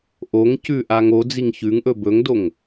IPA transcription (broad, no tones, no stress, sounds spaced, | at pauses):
ʔ o ŋ c ʉ ʔ a ŋ o d͡z i ŋ ç ʉ ŋ ʔ ɵ b ɵ ŋ d o ŋ